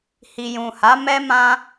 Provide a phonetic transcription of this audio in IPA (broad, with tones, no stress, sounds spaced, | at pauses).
h i˨ j ũ˨ h a˨˦ m ɛ˦ m ã˦